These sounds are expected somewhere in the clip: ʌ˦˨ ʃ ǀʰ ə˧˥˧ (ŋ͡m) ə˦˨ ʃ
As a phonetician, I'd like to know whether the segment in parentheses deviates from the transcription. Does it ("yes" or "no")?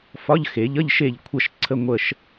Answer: yes